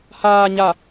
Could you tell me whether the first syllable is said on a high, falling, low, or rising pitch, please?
low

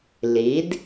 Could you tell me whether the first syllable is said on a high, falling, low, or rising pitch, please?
rising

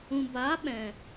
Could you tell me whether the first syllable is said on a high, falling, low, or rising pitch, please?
low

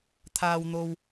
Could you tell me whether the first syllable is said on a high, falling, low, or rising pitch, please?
high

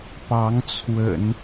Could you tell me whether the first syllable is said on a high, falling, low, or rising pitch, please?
rising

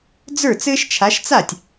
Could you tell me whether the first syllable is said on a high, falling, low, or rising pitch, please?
falling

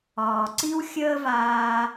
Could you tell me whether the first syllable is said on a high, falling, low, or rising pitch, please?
low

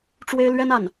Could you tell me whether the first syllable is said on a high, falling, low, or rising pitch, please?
high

